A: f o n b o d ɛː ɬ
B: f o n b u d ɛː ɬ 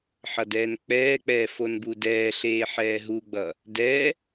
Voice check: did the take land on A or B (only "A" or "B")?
B